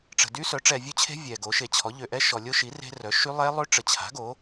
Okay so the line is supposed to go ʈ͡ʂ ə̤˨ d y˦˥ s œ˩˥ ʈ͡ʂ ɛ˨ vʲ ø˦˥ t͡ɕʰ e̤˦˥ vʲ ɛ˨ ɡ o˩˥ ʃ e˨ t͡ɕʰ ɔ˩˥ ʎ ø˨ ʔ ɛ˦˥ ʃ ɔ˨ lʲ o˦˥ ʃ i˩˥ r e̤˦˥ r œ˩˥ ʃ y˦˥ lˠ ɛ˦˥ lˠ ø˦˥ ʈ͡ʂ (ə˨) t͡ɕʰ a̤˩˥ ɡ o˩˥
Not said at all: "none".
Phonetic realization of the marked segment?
ə˨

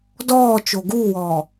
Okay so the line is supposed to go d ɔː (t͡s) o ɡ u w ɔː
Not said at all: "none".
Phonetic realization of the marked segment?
t͡ʃ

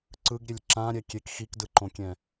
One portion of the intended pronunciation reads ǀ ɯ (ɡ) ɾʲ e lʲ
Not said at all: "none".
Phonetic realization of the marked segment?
ɡ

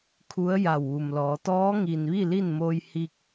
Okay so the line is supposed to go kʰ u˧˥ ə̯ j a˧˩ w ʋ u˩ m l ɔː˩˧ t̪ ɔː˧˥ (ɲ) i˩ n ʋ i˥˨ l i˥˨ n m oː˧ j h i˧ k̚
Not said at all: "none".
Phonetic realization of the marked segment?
ŋ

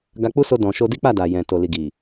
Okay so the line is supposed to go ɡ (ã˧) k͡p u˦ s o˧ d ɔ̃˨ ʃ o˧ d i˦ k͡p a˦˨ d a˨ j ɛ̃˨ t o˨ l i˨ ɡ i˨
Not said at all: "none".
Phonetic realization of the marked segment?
a˧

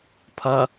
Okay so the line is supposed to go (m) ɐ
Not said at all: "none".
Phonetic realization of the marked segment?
pʰ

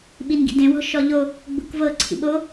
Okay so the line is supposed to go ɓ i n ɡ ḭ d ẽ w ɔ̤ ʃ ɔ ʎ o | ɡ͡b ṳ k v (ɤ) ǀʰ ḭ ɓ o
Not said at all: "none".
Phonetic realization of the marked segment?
ɤ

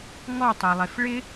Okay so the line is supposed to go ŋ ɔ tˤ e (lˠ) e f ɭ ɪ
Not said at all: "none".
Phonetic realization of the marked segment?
lˠ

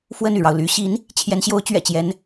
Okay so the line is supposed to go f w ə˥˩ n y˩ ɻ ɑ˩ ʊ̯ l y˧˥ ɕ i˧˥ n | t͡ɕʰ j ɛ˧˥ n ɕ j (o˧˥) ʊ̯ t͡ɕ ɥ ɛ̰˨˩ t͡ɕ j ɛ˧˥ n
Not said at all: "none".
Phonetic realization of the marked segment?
o˧˥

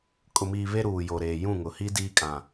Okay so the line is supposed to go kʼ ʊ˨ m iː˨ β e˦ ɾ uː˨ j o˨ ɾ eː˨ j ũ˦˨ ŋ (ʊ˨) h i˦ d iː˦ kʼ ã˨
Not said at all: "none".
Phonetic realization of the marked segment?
ʊ˨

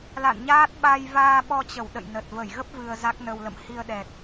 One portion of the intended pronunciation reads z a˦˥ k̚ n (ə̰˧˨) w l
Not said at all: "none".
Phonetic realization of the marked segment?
ə˧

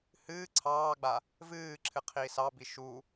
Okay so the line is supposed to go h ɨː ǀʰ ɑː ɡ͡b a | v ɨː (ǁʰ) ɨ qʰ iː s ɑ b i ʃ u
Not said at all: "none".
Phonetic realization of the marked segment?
ǁʰ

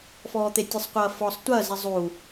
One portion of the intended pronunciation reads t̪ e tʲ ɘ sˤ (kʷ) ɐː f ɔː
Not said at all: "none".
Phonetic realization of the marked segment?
qʷ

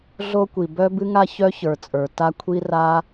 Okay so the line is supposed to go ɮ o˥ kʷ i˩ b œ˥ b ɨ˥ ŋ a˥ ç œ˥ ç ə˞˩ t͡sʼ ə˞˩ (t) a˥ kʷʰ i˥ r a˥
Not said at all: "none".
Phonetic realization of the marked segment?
t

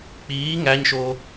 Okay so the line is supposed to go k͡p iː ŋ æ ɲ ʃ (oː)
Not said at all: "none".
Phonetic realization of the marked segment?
oː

